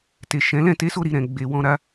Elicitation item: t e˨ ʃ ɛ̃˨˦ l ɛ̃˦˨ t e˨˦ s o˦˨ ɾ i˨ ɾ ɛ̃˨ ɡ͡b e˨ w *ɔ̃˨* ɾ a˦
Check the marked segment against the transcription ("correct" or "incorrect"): incorrect